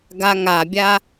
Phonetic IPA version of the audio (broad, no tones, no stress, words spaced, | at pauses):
ɡaŋabʲa